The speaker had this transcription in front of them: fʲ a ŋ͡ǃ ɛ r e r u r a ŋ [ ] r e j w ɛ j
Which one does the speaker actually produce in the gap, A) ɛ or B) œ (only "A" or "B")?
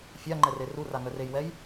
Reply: B